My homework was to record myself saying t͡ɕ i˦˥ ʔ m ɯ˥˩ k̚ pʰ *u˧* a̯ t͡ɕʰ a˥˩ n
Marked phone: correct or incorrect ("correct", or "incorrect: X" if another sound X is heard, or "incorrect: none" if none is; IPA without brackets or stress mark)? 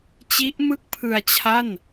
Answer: incorrect: ɯ˧